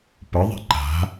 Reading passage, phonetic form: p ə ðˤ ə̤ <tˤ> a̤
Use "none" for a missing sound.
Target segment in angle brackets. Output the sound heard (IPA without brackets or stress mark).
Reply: ǃ